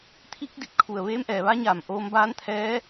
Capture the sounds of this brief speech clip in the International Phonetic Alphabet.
t̪ʰ i˧˥ k̚ d i˧˩ p̚ kʰ u˧˩ ə̯ ʋ eː˧˥ m ʔ ɛː˩˧ ʋ a˧˥ ɲ aː˧˩ m ʔ oː˧ m b aː˧˥ n t̪ʰ ɛː˧˥

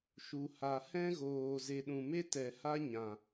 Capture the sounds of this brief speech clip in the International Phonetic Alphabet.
ʃ u˨ h a˨ h ɛ̃˦ ɣ oː˨ z e˨ ɗ ũ˨ m e˦ t ɛ˨ h a˦ ɲ ã˨

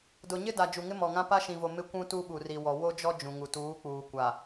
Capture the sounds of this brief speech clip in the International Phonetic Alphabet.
d ʊ˨ ɲ ɪ˦ d a˨ d͡ʒ u˨ ŋ ɪ˦ m ɔ˨ ŋ ã˦ p a˦ ʃ ĩ˨ v o˨ m ɪ˦ kʷ ũ˦ t u˦ ɓ u˨ r i˨ w ɔ˨ w o˦ d͡ʒ ɔ˦ d͡ʒ ũ˨ ŋ u˨ t uː˨˦ k͡p uː˨ kʷ a˨

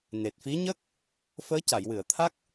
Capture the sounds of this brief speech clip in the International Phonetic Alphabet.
n e˨˩ t̚ f i˧˥ ɲ ə˦˥ k̚ | f əː˧˥ c a˨˩˨ j w ɨ˨˩˨ ə̯ t̪ʰ a˦˥ k̚

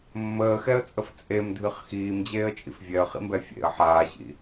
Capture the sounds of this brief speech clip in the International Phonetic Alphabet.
mː əː x ɛ ə̯ t͡sʼ ə f t͡sʼ e m dʱ ɨ χ x iː m d͡ʑ eː ə̯ t͡ʃʼ ḭ f vʲ ɛ ə̯ χ ḭ m b ɛ fʲ ḛ ə̯ ħ aː ɕ ḭ

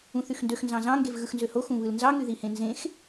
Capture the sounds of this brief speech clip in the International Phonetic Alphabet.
ũ θ y x n d ø x n z ɑ̃ z ɑ̃ ŋ ɡ e v ɣ ɯ x n z ø h o x ũ β ɯ l n z ɑ ŋ y ð i h ẽ n z ẽ x

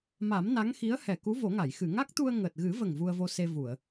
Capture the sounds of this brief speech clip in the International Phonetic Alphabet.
m a˨˩˦ m n a˧˥ ŋ x i˧˥ ə̯ h ɛ˨˩˨ k u˧˥ v o˨˩˦ ŋ a˨˩˨ j x ɨ˨˩˨ ŋ a˦˥ k̚ t̪ u˧ ə̯ ŋ əː˨˩ t̚ ɣ ɨ˨˩˦ v ə˨˩ ŋ v u˧ ə̯ v o˧ s e˧ v u˨˩˨ ə̯

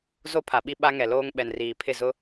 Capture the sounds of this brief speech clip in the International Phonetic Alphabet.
z o˦ pʰ a˨ ɓ i˦ ɓ a˦ ŋ ɛ˨ l oː˦ ŋ ɓ ɛ˨ n r iː˨ pʰ ɪ˦˨ z ʊ˦

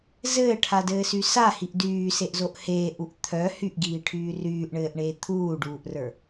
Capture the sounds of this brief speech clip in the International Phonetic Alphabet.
z ɘː ʈʰ a d ɘː s y s a h i ʔ d yː s e ʔ z o ʔ h eː ʔ u ʔ t̪ʰ œ h y ʔ ɡ iː ʈʰ yː r yː ʔ ɳ ɘː ʔ ɳ eː t̪ʰ uː ɖ uː ʔ r ə˞

